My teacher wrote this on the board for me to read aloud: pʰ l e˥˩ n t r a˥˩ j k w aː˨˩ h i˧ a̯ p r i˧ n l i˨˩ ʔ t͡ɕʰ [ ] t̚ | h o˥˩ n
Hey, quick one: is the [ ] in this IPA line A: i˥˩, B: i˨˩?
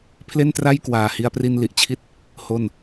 A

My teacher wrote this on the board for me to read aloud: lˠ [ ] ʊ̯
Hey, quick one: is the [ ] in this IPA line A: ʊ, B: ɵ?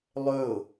B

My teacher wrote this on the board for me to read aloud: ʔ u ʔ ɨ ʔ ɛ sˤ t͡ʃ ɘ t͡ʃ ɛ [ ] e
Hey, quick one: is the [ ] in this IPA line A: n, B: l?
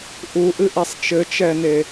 A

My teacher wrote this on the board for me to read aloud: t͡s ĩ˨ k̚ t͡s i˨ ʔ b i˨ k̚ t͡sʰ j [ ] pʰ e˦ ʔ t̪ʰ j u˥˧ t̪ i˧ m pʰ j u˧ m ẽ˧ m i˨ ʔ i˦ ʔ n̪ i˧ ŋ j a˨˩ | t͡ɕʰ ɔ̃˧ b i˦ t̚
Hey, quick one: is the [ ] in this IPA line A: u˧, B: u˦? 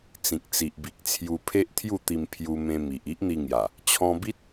A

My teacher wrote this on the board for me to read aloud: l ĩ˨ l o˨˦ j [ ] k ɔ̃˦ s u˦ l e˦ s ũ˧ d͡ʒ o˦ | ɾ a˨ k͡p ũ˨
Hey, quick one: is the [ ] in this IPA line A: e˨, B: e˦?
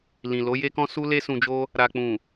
B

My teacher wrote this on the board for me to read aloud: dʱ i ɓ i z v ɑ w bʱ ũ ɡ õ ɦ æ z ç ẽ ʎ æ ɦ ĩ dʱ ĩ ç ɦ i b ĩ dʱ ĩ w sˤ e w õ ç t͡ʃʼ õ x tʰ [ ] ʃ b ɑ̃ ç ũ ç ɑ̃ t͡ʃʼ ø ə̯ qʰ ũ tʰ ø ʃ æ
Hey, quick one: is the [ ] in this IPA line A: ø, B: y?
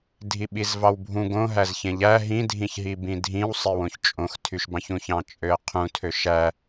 B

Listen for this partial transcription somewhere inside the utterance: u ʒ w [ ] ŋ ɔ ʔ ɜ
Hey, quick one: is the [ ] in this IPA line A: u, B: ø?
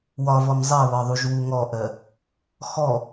A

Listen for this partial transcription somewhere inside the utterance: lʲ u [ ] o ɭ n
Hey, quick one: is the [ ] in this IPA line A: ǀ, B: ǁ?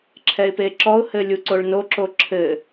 A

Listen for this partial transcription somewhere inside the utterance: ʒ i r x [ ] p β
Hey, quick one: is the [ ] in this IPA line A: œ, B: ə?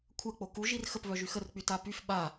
B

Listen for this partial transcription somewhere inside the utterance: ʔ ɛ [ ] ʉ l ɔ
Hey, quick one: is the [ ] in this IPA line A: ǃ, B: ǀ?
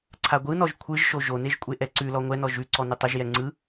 B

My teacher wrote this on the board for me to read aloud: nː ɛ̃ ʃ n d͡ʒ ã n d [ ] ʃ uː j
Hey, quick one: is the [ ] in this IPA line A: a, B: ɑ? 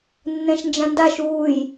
A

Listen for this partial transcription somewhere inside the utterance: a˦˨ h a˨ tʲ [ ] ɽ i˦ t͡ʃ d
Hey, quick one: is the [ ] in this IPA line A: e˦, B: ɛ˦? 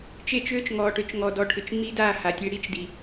A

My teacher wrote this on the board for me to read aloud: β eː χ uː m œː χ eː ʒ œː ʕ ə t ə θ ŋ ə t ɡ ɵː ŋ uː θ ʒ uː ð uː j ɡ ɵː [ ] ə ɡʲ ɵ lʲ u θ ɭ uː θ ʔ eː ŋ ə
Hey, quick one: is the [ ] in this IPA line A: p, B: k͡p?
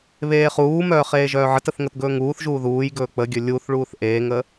B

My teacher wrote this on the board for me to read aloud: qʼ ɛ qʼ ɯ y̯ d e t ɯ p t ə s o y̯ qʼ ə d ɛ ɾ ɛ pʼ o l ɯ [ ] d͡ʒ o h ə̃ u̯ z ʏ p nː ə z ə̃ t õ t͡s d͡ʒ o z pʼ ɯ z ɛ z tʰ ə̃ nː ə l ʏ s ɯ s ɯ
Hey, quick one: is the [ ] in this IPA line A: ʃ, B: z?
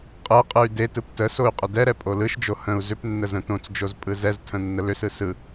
A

